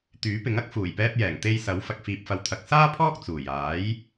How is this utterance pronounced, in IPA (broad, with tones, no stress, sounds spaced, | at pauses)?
t̪ yː˨˥ p ɪ˨˥ ŋ ɐ˥ k̚ f uː˨˩ j p ɛː˧ p̚ j ɛː˨˩ ŋ t̪ e˧ j s ɐ˨˥ w f ɐ˨ k̚ f iː˨ p̚ f ɐ˨ w t̪ʰ ɐ˨ k̚ s aː˥ pʰ ɔː˥ k̚ t͡s uː˨˩ j aː˨˥ j